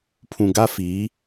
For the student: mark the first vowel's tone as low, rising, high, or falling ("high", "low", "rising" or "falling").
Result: low